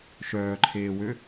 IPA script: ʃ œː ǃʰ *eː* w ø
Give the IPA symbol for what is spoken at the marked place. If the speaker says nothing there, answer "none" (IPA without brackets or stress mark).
eː